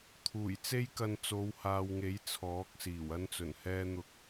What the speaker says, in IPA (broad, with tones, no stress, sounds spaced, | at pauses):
t̪ʰ uː˨˩ j t͡s e˥ j k ɐ˧ n t͡s o˨˧ w h aː˨ w ŋ e˨˥ j t͡sʰ ɔː˨˥ k̚ s iː˨˩ w ɐ˥ n t͡s ɵ˨˩ n h ɛː˥ n̪ ʊ˧ k̚